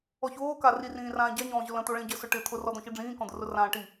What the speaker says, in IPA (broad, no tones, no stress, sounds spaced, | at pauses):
ɔ ç oː k a r i r ĩː r ãː ɟ a ɲ ɔ̃ː ʑ ʊ l ə̃ t̪ o ɭ ẽ ɟ ə s ʊ ʈ ɪ t̪ʰ ʊ r ɔ d̪ ɔ̃ ç i ɖ͡ʐ ĩː k ɔ̃ d̪ ʊ r ʊ r ãː ʈ i